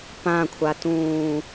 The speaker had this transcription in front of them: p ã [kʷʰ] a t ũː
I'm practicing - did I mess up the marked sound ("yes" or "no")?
no